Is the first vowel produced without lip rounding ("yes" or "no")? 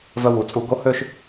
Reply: no